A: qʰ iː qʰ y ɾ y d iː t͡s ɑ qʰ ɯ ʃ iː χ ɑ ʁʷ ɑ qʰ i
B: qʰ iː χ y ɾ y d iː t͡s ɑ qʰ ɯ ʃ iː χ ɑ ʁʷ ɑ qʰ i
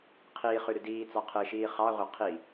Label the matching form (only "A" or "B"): B